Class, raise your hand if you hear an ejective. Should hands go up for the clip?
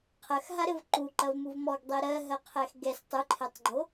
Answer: no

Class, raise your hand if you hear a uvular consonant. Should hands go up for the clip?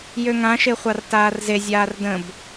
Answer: yes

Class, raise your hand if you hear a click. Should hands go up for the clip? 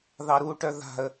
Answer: no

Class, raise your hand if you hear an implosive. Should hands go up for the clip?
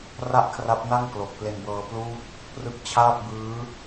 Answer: no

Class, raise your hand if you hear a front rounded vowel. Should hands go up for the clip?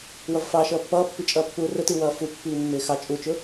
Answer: no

